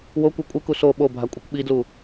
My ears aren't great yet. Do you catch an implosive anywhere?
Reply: yes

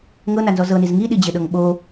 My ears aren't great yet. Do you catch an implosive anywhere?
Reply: yes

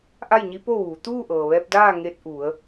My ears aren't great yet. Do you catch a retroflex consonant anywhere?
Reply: no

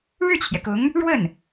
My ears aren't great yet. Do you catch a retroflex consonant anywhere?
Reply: yes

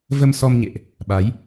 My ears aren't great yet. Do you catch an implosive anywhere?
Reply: yes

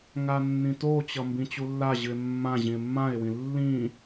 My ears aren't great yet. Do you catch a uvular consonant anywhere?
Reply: no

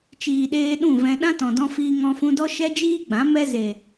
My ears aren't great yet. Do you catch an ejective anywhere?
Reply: no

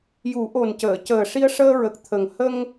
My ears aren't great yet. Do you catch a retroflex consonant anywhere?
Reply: yes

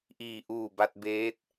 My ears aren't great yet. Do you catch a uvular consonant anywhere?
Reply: no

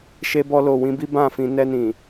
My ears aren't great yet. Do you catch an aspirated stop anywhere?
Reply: no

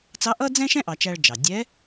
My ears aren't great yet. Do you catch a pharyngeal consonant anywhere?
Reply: no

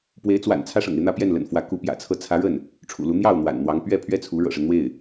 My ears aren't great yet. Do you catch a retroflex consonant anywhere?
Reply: yes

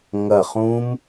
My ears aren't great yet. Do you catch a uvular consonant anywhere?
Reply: yes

